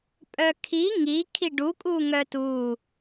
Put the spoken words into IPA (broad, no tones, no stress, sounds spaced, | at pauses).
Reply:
pʼ œ kʰ i ŋ i kʰ i ɖ u kʼ u ŋ œ t u